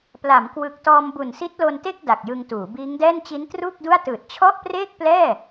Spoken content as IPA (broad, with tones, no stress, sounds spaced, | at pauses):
p l a˩˦ m k w ɯ˨˩ k̚ t ɔː˧ m b u˨˩ n s i˦˥ t̚ l o˧ n t e˥˩ k̚ d a˨˩ k̚ j ɯ˧ ŋ t uː˩˦ b iː˦˥ ŋ d ɛː˥˩ n t͡ɕ i˦˥ n t r uː˥˩ k̚ d u˥˩ a̯ t ɯː˨˩ t̚ t͡ɕʰ ɔ˥˩ ʔ p r eː˥˩ k̚ p l ɛː˥˩